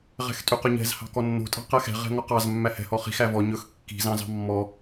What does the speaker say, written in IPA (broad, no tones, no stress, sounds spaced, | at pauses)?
ʁ ɛ̤ x tʼ y q ɵ ɲ ɛ̤ z h ɑ̤ k ɔ nː o̤ tʼ ɑ̤ q ɛ x ɛ̤ ʁ ɛ̤ ŋ ɔ q ɑ z mː æ h ɛ̤ h ɔ χ i̤ x æ v ɔ ɲ ɵ x kː i̤ z ɑ̃ z ɑ̤ mː ɔ